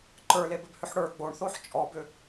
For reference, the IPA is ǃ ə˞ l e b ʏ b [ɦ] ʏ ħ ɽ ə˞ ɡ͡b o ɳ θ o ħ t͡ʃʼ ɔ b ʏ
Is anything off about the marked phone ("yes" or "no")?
yes